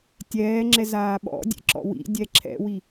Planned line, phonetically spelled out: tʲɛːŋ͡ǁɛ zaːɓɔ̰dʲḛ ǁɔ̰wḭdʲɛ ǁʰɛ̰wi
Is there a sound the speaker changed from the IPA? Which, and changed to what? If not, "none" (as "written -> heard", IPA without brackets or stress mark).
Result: none